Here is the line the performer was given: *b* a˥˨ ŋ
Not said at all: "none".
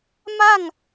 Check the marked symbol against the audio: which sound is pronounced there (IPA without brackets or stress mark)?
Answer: m